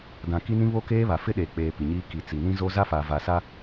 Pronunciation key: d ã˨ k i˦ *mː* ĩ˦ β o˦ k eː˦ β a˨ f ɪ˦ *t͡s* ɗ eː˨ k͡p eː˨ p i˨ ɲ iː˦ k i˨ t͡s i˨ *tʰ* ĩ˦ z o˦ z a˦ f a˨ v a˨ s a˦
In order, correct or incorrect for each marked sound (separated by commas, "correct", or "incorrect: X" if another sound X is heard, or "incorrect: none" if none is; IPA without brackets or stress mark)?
incorrect: n, incorrect: none, incorrect: n